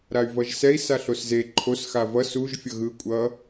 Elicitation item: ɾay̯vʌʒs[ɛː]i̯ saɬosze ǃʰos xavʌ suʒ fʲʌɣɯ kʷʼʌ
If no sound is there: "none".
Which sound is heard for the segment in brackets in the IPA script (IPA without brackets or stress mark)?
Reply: ɛ